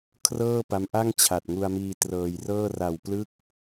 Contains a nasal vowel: no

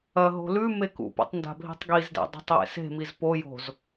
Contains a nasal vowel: no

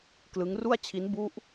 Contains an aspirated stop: yes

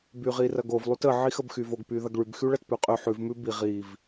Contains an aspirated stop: no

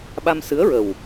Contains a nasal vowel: no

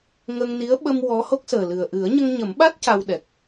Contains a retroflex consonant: no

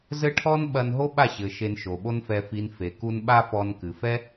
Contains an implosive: yes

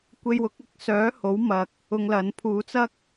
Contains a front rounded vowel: yes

